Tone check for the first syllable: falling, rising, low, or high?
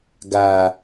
low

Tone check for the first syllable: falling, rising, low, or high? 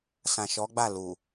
low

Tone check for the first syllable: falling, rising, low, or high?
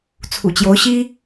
low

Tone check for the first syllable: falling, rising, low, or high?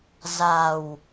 low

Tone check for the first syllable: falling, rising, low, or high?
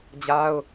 high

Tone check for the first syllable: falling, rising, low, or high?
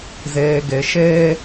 low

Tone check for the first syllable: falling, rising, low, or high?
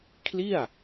falling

